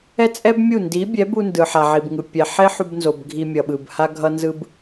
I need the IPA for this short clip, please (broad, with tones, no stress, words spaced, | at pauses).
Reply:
ɛ˦t͡sʼɛ˦bmʲu˦˨ ndi˨˦bʲɛ˨˦bu˧ ndɯ˨ħa˨ʕi˨bŋɯ˨ pʲɛ˨ ħe˦ħu˧bnzo˨b ɡʱi˧mʲʌ˨ɓɯ˨bha˦ ɡʱʌ˦nzɯ˦b